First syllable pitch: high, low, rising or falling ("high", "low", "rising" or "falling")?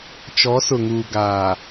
rising